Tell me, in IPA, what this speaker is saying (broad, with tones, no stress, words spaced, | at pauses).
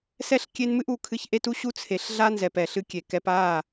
sɛ˦ɬkʲe˦nmɨ˦ʔ u˨kʰɨ˦ç ʔe˦tu˦ɕu˦ t͡sʰe˨ɬɮa˦nzɛ˨pɛ˨ɬ ɨ˦kʲe˨kɛ˦p a˦˨